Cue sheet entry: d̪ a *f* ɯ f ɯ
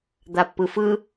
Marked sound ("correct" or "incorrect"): incorrect